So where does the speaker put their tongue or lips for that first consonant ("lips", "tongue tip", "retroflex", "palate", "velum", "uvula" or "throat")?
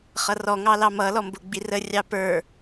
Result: uvula